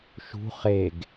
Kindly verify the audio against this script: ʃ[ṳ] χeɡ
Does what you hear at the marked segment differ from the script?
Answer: no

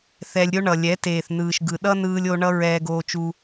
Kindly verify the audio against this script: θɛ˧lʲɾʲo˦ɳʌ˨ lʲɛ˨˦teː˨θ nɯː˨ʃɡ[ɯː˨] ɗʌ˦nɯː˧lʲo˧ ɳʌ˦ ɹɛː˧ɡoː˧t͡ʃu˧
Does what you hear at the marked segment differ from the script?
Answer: yes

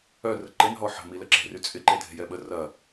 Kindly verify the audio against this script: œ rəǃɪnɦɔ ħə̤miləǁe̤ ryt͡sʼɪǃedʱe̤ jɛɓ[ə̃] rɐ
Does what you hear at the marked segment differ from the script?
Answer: yes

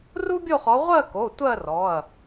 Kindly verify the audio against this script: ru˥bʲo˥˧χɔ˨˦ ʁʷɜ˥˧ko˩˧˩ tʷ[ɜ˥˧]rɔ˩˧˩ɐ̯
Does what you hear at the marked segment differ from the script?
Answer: no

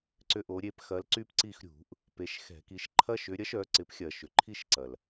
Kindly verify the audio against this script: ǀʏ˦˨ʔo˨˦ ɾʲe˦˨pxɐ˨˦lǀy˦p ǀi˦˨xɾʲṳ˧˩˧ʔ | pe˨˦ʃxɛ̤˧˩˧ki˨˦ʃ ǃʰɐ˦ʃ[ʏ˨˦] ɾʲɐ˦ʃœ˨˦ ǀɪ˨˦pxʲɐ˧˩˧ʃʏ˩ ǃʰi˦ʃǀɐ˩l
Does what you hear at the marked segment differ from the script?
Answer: no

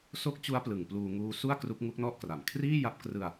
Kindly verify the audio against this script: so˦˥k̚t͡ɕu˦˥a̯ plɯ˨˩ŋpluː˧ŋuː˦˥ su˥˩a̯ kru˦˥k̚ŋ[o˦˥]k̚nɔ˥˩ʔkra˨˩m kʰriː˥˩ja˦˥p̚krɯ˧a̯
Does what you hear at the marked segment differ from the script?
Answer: yes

